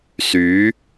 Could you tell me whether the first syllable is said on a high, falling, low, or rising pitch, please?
rising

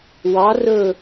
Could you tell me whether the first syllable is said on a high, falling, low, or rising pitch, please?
rising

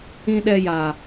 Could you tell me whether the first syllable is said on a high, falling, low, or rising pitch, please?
low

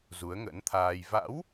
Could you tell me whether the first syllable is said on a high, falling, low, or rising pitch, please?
rising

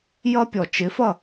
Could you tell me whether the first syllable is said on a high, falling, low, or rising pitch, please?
high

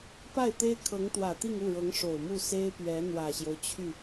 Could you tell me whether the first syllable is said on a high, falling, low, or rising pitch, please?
falling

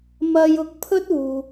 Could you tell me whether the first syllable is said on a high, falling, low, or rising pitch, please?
high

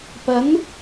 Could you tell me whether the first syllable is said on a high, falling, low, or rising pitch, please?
rising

